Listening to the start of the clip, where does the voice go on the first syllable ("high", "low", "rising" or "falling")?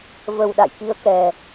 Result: low